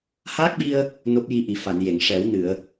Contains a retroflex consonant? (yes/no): yes